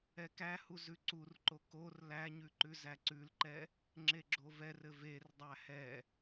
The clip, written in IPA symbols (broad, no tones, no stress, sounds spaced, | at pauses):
ɛ k æ h u z ʉ ǀ u r ǃ o k o r l æ ɲ ʉ ǃ ʉ z æ ǀ ʉ l ǃ ɛ | ŋ͡ǁ e ɡ͡ǁ o v ɛ r ɘ v e r dˤ æ h ɛ